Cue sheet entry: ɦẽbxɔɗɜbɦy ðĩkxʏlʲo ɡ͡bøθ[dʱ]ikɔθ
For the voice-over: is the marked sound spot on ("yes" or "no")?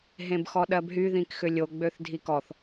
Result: yes